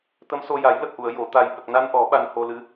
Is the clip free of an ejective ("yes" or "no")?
yes